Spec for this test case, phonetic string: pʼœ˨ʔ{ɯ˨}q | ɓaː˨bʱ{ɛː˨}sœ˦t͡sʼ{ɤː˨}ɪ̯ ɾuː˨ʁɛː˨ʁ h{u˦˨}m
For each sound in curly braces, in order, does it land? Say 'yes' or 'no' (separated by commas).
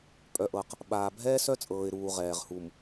no, no, yes, no